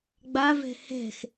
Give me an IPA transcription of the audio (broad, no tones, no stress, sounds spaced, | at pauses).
ɡ͡b a v ɛ̤ h ɛ̤ x